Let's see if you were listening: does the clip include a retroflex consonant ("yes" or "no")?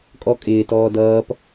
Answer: no